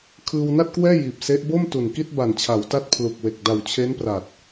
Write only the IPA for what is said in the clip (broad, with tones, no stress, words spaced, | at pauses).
kʰɯː˧wna˥˩t̚kwɛː˥˩ jiː˨˩p̚se˦˥ʔ bo˥˩m tu˨˩nki˥˩t̚ ba˨˩nt͡ɕʰa˩˦wta˦˥t̚ pʰlu˨˩k̚we˨˩k̚ da˨˩wt͡ɕʰe˦˥npra˨˩t̚